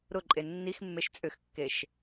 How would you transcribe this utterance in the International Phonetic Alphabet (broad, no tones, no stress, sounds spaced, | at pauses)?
ɾ ʊ ǃʼ e nː i x mː e ʃ t͡sʼ ʏ x kː e ʃ